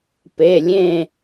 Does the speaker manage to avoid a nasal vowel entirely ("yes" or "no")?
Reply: no